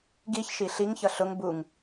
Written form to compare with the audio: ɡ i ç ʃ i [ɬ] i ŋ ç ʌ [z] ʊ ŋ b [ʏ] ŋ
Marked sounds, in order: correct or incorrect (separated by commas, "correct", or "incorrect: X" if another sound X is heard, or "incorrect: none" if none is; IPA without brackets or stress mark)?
correct, incorrect: ɬ, incorrect: u